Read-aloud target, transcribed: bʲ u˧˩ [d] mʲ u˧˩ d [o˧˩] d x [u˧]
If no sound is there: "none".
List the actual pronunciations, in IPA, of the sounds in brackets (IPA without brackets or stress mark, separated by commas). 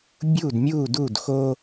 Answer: d, u˧˩, o˧